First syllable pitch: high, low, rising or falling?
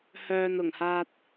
low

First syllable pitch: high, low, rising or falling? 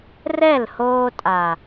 falling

